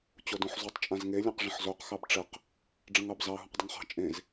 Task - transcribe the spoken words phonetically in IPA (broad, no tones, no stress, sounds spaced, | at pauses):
t͡ɕ o d õ ħ z u tˤ t͡ʃʼ ã z ŋ e lʲ ẽ q ʐ ə̃ ħ z o q x ɑ b ʈ͡ʂ ə q | ɖ͡ʐ ə̃ ŋ ɑ b z ɑ ɦ ũ q dˤ ə ŋ χ ɑ̤ t͡ʃʼ ẽ z